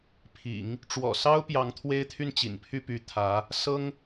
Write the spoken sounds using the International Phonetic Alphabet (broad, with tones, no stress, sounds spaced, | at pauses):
pʰ ḭ˨˩˦ ŋ | ʈ͡ʂ w ɔ̰˨˩ s ɑ˥ ʊ̯ p j ɑ˧˥ ŋ t̪ʰ w e˥ ɪ̯ t̪ʰ y˥˩ n t͡ɕ ḭ˨˩ n pʰ y˥˩ p y˧˥ t̪ʰ ä˧˥ | s ɤ˥ ŋ